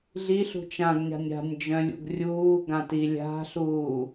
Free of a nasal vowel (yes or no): no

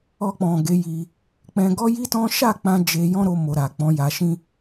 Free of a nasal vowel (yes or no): no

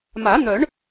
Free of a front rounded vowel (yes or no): no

